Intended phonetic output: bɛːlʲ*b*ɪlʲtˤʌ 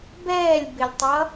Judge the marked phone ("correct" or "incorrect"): correct